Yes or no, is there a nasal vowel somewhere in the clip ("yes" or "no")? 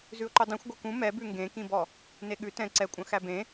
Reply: yes